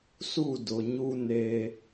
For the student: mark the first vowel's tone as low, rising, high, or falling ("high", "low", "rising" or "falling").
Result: falling